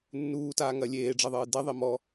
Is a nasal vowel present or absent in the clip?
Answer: absent